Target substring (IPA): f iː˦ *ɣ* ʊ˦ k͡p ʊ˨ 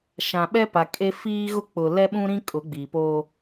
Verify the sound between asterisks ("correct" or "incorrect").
correct